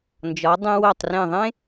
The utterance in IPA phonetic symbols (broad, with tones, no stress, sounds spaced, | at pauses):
n d͡ʒ ɒ˩˧ dˤ ẽ˧ w o˧˩ tˤ r ẽ˧˩ ðˤ ẽ˥